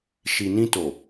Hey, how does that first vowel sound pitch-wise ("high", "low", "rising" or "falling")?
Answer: low